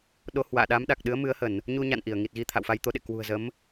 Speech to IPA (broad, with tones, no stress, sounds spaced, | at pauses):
ɗ o˨˦ h w a̰ː˧˨ ɗ a˨˦ m ɗ a˨˩ k̚ ɗ ɨ˨˦ ə̯ m ɨ˨˦ ə̯ h ə˧˩˨ n | ɲ u˧ ɲ a̰˧˨ n ʔ i˧˩ ə̯ ŋ i˨˩ t̚ ɣ i˧ t̪ʰ a̰˧˨ w f a˧ j t̪ o˨˦ ɗ ḛ˧˨ k w ṳ˨˩ ə̯ z ə˨˦ m